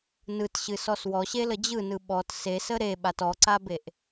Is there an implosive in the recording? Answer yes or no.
yes